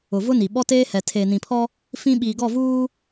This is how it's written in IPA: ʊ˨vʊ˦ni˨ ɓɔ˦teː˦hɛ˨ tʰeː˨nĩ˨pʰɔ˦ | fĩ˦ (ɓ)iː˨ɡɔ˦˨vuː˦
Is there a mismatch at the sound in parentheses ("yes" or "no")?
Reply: no